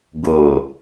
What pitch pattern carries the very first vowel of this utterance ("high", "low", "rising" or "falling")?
low